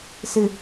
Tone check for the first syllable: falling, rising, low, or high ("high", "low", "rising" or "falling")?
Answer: low